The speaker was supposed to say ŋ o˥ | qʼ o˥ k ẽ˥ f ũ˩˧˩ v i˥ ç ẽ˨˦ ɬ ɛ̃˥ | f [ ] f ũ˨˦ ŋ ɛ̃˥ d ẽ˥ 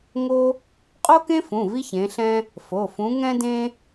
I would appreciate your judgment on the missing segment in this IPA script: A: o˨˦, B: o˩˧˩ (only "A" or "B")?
B